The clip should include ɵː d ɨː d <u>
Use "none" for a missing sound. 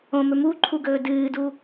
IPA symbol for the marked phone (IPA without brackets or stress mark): u